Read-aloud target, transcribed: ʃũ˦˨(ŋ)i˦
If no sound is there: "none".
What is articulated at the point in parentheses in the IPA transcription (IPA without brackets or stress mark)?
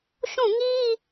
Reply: ŋ